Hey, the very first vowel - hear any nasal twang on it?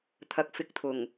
no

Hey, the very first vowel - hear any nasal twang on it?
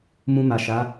yes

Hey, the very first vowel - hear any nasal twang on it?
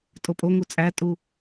no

